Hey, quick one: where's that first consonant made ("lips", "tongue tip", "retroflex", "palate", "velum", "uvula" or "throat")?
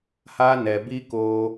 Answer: throat